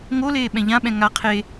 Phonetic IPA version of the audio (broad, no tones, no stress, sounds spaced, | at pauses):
ŋ o l eː ɓ ɛ̃ ʎ ã ɓ ɛ̃ ŋ a qʰ e